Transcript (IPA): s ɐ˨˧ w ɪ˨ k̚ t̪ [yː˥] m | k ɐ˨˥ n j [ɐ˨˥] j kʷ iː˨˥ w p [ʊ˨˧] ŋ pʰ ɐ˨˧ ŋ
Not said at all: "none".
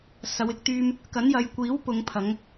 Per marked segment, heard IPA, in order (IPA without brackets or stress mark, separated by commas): yː˥, ɐ˨˧, ʊ˨˧